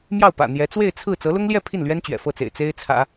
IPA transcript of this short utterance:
m j ɑ˥˩ ʊ̯ p ä̰˨˩ n̪ j ɛ˧˥ t͡s w e˥˧ ɪ̯ t͡sʰ ɹ̩˥˩ t͡s ɤ˧˥ l ʊ˥ ŋ l j ɛ˥˧ pʰ i˥˩ n l ɥ ɛ˥ n t͡ɕ ɥ ɛ̰˨˩ f ɤ˥˩ t͡s ḛ˨˩ ɪ̯ t͡s e˥ ɪ̯ t͡sʰ ä̰˨˩˦

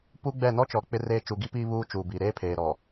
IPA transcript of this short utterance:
p u˦ ɡ͡b ɛ˦˨ n ɔ˦ t͡ʃ ɔ˨ k͡p ɪ˦ r eː˦ t͡ʃ u˨ ɡ i˦ p iː˦ β uː˦ t͡ʃ uː˨ b i˨ ɾ eː˦ pʰ eː˨ ɾ ɔ˨

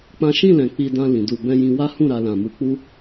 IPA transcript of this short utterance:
k͡p ã˦ ʃ ĩ˦˨ l ɛ̃˨ k͡p i˧ d ã˧ l ĩ˨ d u˧ b ɛ̃˧ j ĩ˧ w a˦ h ũ˦˨ ɾ a˧ l ã˨ m u˧ k͡p u˦

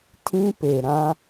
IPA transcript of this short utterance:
tʰ ĩ˦ p e˨ ɾ ã˦

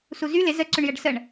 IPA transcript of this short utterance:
s u z y l ɪ z ə ǀ ʏ ɳ j ə ɖ s ə ɳ

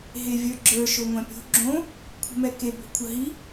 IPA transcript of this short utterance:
ɦ e vʲ ə˞ ɡ͡ǁ ə˞ ʃ o ŋʷ ɛ̃ pʲ o̤ ɡ͡ǁ õ | kʷʰ ɛ̤ m ɛ k e b o̤ kʷʰ ə ɦ i

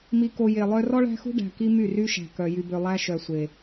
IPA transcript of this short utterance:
m i˨ k o˨ j e˨ lˠ œ˦ r ɔ˦ ɭ æ̤˦ x ṳ˦ ɖ æ̤˨ k i˦ m y˦˨ r y˦ ʃ æ̤˨ k œ˨ j y˨ b ø˨ lˠ æ˦ ʃ œ˨ sʷ e˨

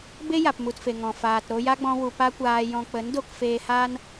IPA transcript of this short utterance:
b e˦ j a˨ p m u˨ t f e˨ ŋ ɔ̃˨ f aː˨ t ɾ o˧ j a˦ ɡ͡b ɔ̃˦ w u˧ p a˦ kʷ aː˧ j ɔ̃˧ k͡p ə˨˦ n d o˧ k f eː˧ h aː˦ n

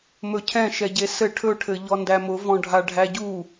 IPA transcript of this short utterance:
m ɵ cʰ ɛ̃ ʃ ɛ ɟ e s ɘ ʈʰ ɵ ʈʰ ɘ ʎ ɔ n d æ m ʊ v ɔ̃ ɖʱ a ɖʱ æ ɟ u

